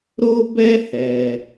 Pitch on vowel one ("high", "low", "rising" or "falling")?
high